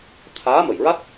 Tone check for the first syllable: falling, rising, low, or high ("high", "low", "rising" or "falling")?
rising